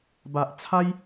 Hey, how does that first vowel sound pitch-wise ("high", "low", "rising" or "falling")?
low